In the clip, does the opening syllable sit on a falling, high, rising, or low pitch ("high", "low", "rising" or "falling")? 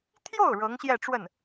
falling